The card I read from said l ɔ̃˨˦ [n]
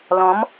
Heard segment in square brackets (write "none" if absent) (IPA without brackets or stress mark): m